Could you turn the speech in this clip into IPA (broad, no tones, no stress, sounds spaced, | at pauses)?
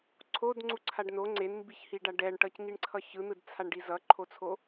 ǀʰ o d ŋ͡ǀ u ǀʰ a ɖ n o ŋ͡ǀ e n m b i ç h i ɖ a ɖ ɛ ɳ ʈ ʌ c ŋ i ɳ ǀʰ ʌ ç ɯ n̪ ɯ d t͡sʰ a ɳ ɖ i z ʌ ǃʰ o t͡sʰ o